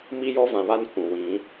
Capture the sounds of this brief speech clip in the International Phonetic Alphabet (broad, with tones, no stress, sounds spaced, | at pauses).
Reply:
m i˦ j ɔ˦ v ã˨ β a˦ n kʷ ũ˨ w ĩ˨˦